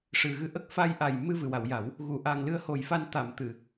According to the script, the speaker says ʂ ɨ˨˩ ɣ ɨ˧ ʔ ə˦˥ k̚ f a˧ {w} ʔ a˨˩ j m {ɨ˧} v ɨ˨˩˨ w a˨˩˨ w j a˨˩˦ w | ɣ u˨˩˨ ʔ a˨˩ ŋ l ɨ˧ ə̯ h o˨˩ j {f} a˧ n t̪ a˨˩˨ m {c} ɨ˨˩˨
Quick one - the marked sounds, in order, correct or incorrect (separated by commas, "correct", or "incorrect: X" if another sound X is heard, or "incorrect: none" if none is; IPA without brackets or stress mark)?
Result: incorrect: j, correct, correct, incorrect: t̪